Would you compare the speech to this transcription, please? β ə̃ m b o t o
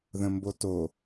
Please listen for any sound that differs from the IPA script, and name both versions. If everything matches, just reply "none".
β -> ð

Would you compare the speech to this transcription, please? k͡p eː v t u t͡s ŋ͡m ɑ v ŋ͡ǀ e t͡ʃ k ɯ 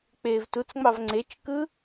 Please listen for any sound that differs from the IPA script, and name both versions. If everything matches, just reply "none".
none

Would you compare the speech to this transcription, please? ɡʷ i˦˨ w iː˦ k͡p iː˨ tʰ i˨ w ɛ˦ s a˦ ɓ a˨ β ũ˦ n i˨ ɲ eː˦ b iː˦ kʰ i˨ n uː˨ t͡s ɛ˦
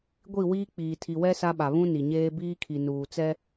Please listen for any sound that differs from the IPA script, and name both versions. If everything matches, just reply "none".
none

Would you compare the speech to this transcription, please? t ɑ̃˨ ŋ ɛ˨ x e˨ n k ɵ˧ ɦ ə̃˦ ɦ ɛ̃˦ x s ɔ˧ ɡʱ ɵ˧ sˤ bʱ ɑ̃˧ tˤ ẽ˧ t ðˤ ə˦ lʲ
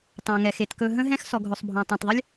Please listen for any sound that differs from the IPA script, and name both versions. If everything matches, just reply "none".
n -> t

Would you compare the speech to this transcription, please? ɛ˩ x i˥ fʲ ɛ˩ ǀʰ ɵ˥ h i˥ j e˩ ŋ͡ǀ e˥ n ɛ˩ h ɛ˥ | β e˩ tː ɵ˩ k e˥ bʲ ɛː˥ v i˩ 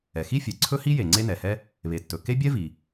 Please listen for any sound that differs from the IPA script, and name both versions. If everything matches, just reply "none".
ɛː˥ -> ɛ˥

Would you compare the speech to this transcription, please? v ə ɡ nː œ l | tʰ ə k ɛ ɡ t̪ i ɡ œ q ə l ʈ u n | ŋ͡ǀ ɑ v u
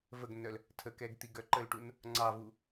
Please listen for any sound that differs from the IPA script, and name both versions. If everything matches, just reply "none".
q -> ǃ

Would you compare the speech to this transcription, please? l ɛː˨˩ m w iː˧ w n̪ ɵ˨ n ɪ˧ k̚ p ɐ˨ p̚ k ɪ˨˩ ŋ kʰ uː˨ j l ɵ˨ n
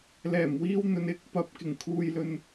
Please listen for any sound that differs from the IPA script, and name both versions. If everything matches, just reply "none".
none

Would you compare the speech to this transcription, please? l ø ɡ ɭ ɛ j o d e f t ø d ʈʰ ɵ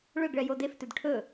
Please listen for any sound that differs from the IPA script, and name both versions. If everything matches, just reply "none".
l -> ɭ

